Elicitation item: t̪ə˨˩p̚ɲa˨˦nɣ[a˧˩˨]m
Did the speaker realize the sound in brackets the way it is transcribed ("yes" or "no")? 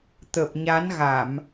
yes